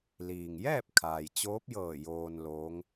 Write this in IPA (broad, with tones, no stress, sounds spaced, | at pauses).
l iː˩ ŋ j ɛː˥˨ p̚ kʰ aː˩ j t͡ɕ oː˧˥ p̚ j ɤː˧˩ j oː˧ n l oː˧˥ ŋ